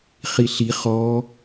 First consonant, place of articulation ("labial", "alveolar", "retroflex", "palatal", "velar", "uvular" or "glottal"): uvular